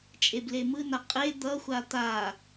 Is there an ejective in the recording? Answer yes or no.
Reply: yes